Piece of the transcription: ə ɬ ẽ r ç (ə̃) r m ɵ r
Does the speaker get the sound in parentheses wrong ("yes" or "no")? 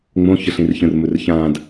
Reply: no